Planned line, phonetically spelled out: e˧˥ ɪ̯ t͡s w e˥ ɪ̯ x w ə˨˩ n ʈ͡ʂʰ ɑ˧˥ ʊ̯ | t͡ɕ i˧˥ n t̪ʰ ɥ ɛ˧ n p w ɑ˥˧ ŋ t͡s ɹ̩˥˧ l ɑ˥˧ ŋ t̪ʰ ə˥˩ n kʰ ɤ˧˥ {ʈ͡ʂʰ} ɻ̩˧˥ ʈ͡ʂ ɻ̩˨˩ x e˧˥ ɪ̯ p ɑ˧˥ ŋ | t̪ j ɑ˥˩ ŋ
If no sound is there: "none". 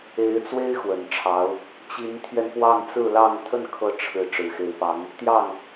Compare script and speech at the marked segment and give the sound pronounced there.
ʈ͡ʂʰ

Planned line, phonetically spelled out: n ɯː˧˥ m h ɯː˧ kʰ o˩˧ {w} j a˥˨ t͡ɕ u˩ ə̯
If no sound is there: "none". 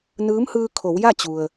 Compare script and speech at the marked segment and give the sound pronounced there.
w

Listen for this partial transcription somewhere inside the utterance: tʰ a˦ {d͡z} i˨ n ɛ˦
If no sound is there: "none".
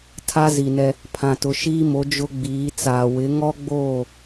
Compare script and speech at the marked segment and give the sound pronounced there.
z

